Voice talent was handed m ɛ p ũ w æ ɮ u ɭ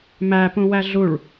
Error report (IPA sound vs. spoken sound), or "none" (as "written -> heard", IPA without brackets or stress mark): ɛ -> æ